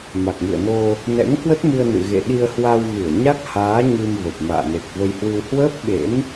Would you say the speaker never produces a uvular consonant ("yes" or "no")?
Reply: yes